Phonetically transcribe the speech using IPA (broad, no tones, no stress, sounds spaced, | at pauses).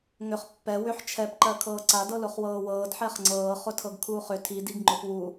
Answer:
ŋ ʏ χ pː ɛ w ʏ ħ t͡ʃʰ ɛ p ǃ ɜ kʰ ɤː ǀ a d ɤ l ʊ χ w ɤː w ɤː d ħ ɛ χ ŋ͡ǀ ɤː χ ʊ tʰ ɤ ɡ kʰ uː χ ʏ tʰ i d i ɡ ŋ͡ǃ ʊ p w u